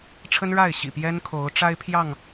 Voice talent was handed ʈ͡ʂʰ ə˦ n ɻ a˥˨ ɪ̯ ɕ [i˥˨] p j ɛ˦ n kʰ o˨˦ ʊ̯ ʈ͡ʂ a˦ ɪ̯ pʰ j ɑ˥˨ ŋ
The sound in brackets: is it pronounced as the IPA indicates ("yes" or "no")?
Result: no